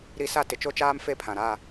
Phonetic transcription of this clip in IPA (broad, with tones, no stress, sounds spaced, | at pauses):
ɾ i˦ s a˦ t ɪ˨ t͡ʃ o˦ t͡ʃ aː˦ m f e˦ pʰ ã˨ ɾ a˦˨